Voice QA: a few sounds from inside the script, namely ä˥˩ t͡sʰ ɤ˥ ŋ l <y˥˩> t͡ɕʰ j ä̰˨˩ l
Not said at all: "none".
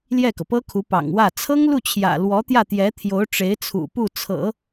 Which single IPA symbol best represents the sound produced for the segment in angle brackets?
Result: u˥˩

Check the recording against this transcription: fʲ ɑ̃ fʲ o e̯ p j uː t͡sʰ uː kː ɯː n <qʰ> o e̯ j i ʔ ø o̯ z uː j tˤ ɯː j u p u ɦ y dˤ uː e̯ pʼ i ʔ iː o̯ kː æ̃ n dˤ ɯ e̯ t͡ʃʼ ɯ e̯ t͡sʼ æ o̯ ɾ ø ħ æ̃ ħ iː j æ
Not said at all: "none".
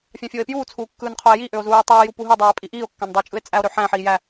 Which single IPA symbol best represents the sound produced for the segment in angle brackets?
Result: qʰ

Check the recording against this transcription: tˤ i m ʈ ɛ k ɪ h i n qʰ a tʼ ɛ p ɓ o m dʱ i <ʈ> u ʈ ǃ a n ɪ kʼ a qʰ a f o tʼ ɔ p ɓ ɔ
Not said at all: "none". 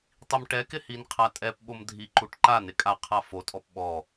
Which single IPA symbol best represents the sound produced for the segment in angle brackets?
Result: ǃ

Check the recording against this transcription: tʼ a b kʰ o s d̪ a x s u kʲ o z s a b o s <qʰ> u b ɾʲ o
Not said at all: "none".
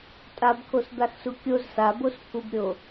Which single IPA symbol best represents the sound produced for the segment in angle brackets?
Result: pʰ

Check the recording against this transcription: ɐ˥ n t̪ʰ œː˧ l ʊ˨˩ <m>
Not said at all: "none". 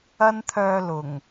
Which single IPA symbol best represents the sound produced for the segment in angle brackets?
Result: ŋ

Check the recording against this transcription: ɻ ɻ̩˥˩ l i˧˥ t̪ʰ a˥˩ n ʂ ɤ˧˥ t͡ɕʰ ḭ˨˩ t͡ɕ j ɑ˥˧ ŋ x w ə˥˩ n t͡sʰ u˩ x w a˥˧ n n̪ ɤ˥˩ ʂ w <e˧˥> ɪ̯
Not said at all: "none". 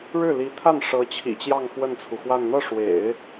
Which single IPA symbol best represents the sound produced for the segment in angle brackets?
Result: ḛ˨˩˦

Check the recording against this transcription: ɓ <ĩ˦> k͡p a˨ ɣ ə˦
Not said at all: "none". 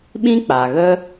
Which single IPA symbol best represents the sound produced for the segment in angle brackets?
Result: ĩ˦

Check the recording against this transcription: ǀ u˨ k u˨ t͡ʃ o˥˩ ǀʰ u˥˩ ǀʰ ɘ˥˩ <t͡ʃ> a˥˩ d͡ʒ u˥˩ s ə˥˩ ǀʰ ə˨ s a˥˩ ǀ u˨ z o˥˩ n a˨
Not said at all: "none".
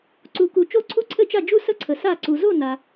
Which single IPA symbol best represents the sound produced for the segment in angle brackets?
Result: t͡ʃ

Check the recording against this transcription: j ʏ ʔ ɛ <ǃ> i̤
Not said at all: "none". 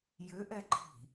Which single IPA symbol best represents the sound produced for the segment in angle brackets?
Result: ǃ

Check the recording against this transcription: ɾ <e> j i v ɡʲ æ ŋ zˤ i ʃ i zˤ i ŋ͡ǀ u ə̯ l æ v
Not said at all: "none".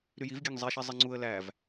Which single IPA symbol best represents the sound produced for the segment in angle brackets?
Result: y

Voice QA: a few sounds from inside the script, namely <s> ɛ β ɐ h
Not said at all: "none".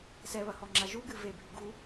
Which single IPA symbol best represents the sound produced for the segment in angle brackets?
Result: s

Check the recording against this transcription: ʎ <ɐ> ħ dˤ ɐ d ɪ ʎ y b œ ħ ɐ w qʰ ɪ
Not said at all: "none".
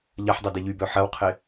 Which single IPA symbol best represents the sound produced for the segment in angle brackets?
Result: ɐ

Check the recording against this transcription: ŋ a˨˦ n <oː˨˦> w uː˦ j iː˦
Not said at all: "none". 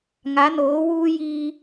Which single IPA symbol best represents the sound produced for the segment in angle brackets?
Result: oː˨˦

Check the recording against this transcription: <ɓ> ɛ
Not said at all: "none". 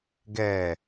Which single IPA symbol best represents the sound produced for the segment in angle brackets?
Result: ɡ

